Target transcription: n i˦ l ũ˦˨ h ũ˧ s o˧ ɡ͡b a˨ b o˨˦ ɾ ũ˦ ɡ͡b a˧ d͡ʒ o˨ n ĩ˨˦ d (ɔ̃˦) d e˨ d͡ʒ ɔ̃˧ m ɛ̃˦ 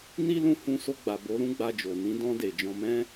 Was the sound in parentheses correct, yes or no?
no